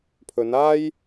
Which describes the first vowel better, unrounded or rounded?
rounded